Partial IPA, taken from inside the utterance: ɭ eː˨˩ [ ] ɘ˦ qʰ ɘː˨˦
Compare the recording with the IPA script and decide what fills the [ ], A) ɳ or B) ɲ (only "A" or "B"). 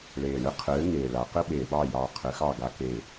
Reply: A